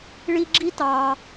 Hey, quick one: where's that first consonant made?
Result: retroflex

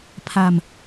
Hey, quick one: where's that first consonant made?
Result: lips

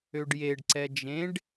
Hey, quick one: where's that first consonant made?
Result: retroflex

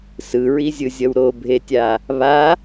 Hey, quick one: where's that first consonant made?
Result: tongue tip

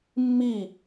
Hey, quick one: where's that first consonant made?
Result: lips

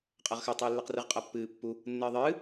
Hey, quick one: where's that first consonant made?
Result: uvula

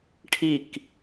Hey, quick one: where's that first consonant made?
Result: retroflex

